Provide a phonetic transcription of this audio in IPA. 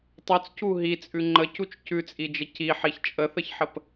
tˤ ʉ t͡s c u ɦ i t͡sʼ ʉ ŋ͡ǃ ə c u t͡ʃ c ʉ t͡sʼ i d͡ʒ ə c i ħ i ç t͡ʃʼ ə θ ə ç ħ ə p

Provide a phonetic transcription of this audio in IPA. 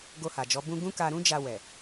ɡ o˧ h a˨ d͡ʒ ɔ˨˦ b ũ˦ ɡ ũ˦ k a˧ ɾ ũ˦ d͡ʒ a˧ w ɛ˨

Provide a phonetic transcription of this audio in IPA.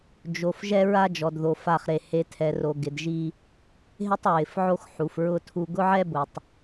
d͡ʒ o˨ f ʒ ɛ˦ ɹ a˦ d͡ʒ ɔ˨ d ð o˨ f a˦˨ χ ɾ e˨ h e˨ tʰ ɛ˨ r o˨ ɡ ɪ˨ d ʒ i˦ | ɦ ɪ˦ tˤ ɹ ɪ˨ f ʕ o˦ x ħ u˨ f ɹ ʊ˦ tʰ u˦ ɡ ʊ˦ ʕ ɛ˦ b ʊ˨ tˤ

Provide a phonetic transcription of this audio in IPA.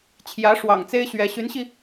t͡ɕʰ j ä˧˥ ʂ w ɑ̰˨˩ ŋ t͡s e˥ ɪ̯ ɕ ɥ ɛ˧˥ ɕ y˧˥ n ɕ i˧

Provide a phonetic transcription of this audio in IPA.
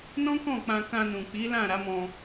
n ɔ̃˦ k ɔ̃˦˨ k͡p ã˧ k ã˧ n ũ˨ k͡p i˨˦ l ã˦˨ ɾ a˨˦ m ɔ̃˧

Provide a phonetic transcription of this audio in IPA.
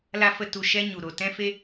l a˧ f ə˧ t u˧ ʃ ɛ˦ ɲ u˨ ɾ o˨ t ɛ̃˦ f e˦

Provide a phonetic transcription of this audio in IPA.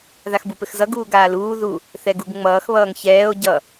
ð a x b u p ɘ x z ʌ ɡ uː ɡ aː l uː ð u | θ ɛ ɡ u ɡ ŋ͡m ʌː x β ʌː ŋ ç ɛː o̯ ɟ ʌ

